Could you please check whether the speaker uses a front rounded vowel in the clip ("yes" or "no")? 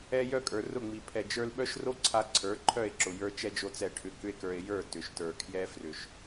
yes